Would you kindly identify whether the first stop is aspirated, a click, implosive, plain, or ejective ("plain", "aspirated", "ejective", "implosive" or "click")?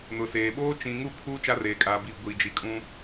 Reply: implosive